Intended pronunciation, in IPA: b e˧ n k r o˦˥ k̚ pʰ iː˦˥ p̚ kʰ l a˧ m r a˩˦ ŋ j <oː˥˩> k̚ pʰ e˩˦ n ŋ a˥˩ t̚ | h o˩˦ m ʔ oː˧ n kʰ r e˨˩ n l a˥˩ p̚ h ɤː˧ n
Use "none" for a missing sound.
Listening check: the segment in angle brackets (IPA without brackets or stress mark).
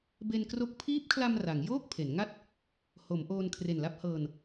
oː˥˩